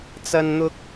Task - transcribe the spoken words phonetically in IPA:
t͡s ɐ˥ n n̪ ʊ˥ k̚

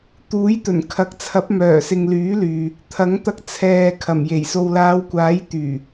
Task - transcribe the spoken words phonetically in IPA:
t̪ uː˨˥ j t̪ ɵ˨˩ n kʰ ɐ˨˥ k̚ t͡sʰ ɐ˨˥ p̚ m œː˨˩ s ɪ˨ ŋ l yː˨˥ l yː˨ | t̪ʰ ɐ˨˥ ŋ t̪ ɐ˧ k̚ t͡sʰ ɛː˨ kʰ ɐ˨˩ m j e˨˩ j s o˨ w l aː˨˧ w kʷ aː˨˥ j t̪ yː˨˩

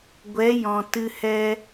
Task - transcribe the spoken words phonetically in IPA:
ɡʷ ɛ˨˦ j ɔ̃˨ t ɨ˧ h ɛ˦

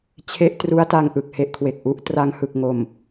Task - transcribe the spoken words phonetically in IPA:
t͡ɕʰ e˦˥ ʔ t r u˦˥ a̯ t a˧ ŋ ʔ ɯ˨˩ k̚ h e˦˥ ʔ kʰ w e˨˩ k̚ ʔ u˦˥ ʔ t r a˧ ŋ h ɯ˨˩ k̚ ŋ o˨˩ m

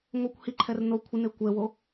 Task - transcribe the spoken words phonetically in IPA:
ŋʷ e kʷ h i ǃʰ ɛ r n o kʷʰ ɪ n e kʷ ɛ w o

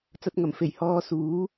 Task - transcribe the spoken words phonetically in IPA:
t͡s ɐ˧ t̚ ŋ ɐ˨˩ m f e˨˩ j h ɔː˧ s uː˨˥

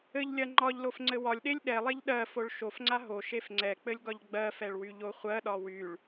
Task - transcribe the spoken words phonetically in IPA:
ɘ ʎ lʲ ɜ ŋ͡ǃ ɒ ʎ l o f ŋ͡ǀ ɘ w ɒ lʲ ɗ e lʲ ɗ ɛ lˠ e ʎ ɗ ɜ f o ɭ ʃ o f ŋ͡ǀ a ɦ o ʃ e f ŋ͡ǀ ɛ k͡p ɘ lʲ ɡ ɒ ʎ ɡ͡b ɜ f ɛ ɭ w y ʎ o χʷ ɜ ɗ ɒ w y ɭ

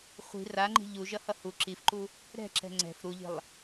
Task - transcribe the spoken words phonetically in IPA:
χʷ i̤ r a ŋ͡ǃ i̤ ʎ u ʒ ʌ h ʌ h u ǁ i f ǃ u | ɾ ɛ̤ ǁ ɛ̤ ŋ͡ǀ ɛ̤ f ɾ u ʎ i̤ lˠ

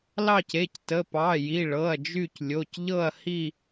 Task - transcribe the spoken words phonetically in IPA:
l ɑ˦˨ c e˩˧˩ c t ə˩˧˩ p ɑ˩˧˩ j i˩˧˩ ɭ ɤ˩˧˩ ɐ̯ d͡ʒ y˦˨ c lʲ o˩˧˩ c ʎ ɤ˦˨ ɐ̯ h i˦˨

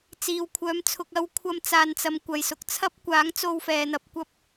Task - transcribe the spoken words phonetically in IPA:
t͡s iː˨ w kʷʰ œː˨˧ m t͡sʰ ʊ˨ k̚ ɐ˥ w kʷʰ ɐ˧ m t͡s aː˨ n t͡s ɐ˨ m kʷ ɐ˨ j s ʊ˨ k̚ t͡sʰ ɐ˥ p̚ kʷ aː˨˥ ŋ t͡s o˧ w f ɛː˨ n̪ ɐ˧ p̚ kʷ ɐ˧ p̚

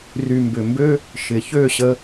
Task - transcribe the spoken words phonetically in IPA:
r y˨ m b ʏ˨ m b ø˦ | ʃ ɪ˨ ç ø˦˨ ɕ ə˦

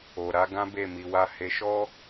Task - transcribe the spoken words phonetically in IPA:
o˨ ɾ a˧ ɡ ã˦ b e˦˨ m i˧ w a˧ h e˧ ʃ ɔ˦

